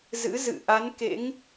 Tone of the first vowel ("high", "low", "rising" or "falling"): rising